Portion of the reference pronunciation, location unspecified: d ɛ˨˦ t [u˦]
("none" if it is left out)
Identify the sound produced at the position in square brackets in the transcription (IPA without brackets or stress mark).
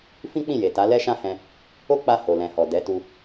u˧